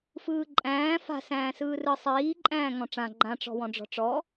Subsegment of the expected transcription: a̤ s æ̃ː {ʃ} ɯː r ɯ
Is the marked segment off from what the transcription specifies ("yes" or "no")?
yes